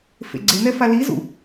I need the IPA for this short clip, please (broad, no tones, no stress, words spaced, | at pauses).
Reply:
fḛɡ͡ǀenɛ falizṵ